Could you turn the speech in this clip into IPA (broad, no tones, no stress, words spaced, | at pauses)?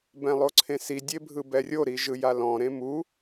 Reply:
bɛ̃lˠoǀʰẽsi dʲebʱɯbɛrʲo ɾiʒɯjalɔ̃ ɾẽmu